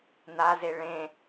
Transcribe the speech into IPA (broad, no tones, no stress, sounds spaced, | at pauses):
n̪ a z e ɭ ẽ